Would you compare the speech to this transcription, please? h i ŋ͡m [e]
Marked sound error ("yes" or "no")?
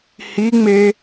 no